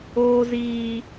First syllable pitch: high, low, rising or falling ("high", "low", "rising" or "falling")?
low